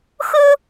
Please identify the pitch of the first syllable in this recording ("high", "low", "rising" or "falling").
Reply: high